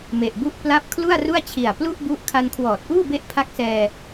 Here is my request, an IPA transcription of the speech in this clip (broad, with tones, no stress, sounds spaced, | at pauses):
m e˨˩ ʔ b u˥˩ ʔ p l a˦˥ p̚ kʰ l u˥˩ a̯ r u˥˩ a̯ t͡ɕʰ i˨˩ a̯ p l u˥˩ ʔ b u˦˥ ʔ kʰ a˧ n kʰ w ɔː˨˩ t̚ ʔ uː˥˩ b e˦˥ ʔ pʰ a˦˥ k̚ s ɛː˧